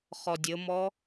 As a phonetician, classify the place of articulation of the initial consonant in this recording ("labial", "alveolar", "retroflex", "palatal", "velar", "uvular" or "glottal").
uvular